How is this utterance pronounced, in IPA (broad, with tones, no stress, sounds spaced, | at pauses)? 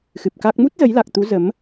x ɨ˨˩ p̚ k a˦˥ k̚ m u˦˥ t̚ z ə˨˦ j l a˨˩ k̚ t̪ u˨˦ z ə˨˦ m